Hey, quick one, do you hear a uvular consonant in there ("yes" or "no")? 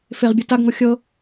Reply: yes